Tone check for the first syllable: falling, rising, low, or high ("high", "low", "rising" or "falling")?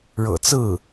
low